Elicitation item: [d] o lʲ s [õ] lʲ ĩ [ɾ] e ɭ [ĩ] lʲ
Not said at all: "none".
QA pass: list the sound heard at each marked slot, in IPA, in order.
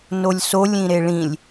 n, o, ɾ, ĩ

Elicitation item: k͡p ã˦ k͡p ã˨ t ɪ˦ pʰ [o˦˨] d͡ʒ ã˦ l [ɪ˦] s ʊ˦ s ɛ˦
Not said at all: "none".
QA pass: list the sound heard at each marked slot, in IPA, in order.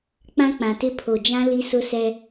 o˨, i˦

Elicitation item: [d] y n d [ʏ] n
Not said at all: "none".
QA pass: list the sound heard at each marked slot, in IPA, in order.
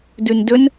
d, ʏ

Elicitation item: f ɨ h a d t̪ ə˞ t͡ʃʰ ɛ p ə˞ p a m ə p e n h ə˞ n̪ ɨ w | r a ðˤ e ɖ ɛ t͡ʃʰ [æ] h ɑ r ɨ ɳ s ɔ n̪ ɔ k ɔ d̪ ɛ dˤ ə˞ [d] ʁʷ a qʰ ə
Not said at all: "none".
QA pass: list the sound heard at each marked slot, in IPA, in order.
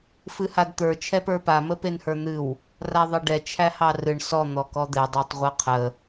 æ, tˤ

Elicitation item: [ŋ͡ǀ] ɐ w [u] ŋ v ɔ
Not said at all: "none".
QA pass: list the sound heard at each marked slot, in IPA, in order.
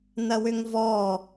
n, ʏ

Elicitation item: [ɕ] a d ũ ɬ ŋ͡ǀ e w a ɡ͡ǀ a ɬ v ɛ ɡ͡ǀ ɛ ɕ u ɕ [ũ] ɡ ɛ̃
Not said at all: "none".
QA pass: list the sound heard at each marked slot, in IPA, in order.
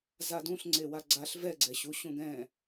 z, ũ

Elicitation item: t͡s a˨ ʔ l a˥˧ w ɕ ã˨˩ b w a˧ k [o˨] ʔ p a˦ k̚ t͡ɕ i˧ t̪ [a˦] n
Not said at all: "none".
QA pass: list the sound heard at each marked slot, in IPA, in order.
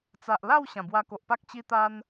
o˨, a˧

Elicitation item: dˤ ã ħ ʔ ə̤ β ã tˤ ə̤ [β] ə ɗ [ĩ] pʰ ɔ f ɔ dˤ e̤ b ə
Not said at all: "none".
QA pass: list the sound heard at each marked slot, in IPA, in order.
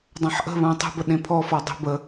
b, ẽ

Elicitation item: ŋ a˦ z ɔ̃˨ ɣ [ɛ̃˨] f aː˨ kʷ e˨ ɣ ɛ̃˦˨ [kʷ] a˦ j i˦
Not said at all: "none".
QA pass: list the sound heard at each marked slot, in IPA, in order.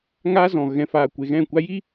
ɛ̃˨, kʷ

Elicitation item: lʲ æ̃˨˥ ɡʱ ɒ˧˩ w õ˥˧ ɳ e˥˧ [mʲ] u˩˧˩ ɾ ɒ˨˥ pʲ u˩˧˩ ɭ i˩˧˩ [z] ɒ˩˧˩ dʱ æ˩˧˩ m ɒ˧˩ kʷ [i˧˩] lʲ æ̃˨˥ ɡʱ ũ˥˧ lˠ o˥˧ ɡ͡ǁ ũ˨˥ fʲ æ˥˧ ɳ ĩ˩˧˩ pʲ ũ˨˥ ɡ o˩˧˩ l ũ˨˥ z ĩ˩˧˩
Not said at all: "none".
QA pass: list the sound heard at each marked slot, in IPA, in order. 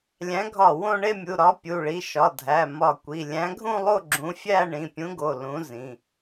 mʲ, ʃ, i˩˧˩

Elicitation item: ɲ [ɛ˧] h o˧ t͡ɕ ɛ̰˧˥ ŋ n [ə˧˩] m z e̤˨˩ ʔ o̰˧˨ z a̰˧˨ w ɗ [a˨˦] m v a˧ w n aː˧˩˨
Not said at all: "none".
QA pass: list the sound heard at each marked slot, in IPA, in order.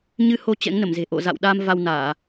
ɨ˧, ə˧˩, a˧

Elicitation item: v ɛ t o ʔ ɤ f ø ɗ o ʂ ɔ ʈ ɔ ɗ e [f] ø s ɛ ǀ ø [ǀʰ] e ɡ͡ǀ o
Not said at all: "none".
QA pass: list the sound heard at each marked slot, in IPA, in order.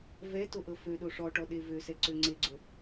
v, ŋ͡ǀ

